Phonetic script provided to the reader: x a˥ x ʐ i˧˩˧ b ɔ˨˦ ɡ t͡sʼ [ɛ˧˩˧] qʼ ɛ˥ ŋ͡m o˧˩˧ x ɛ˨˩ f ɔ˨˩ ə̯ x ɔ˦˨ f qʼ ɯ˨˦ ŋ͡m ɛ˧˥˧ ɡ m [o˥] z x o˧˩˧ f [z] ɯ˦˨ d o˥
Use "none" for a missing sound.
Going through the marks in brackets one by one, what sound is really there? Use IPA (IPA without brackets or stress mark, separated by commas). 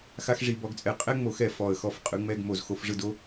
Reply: ɛ˦˨, o˧˩˧, ʐ